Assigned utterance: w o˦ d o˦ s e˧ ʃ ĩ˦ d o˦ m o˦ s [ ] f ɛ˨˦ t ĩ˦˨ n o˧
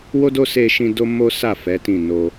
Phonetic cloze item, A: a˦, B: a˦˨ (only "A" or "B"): B